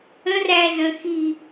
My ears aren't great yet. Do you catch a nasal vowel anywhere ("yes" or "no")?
yes